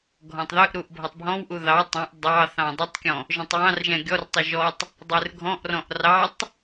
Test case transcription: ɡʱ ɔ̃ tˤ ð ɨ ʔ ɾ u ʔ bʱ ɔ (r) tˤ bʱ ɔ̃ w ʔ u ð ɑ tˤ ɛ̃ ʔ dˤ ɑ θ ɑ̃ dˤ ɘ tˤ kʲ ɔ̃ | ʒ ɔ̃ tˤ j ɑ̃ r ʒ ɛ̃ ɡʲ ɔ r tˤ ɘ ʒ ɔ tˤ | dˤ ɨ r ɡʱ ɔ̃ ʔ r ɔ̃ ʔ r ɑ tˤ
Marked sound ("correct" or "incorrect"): incorrect